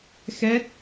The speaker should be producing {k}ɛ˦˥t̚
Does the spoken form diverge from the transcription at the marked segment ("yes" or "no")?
yes